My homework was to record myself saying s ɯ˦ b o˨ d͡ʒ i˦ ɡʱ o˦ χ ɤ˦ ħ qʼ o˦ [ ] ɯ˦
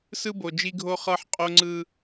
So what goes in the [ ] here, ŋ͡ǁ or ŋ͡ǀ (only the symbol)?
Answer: ŋ͡ǀ